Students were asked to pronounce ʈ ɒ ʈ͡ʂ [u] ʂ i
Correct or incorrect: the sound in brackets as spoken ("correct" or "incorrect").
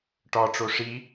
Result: incorrect